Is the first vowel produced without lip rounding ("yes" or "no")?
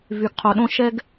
no